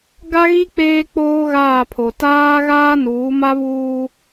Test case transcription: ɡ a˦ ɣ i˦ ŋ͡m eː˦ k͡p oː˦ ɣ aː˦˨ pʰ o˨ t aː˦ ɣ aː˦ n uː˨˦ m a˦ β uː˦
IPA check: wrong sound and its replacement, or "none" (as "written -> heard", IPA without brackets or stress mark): ŋ͡m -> k͡p